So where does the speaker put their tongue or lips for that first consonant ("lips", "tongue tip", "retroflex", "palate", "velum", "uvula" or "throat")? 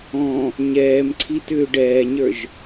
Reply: palate